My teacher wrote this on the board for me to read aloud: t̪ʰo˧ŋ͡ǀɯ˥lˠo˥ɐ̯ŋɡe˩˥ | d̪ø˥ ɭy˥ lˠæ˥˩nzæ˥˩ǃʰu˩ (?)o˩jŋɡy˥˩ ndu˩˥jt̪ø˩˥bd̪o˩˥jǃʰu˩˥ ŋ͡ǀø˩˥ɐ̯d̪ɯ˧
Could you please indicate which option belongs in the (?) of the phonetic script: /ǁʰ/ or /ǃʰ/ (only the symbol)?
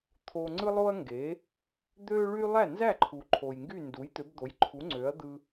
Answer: ǃʰ